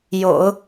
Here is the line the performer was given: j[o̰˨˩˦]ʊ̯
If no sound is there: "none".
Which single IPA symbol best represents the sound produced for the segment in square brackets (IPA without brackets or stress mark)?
o̰˨˩˦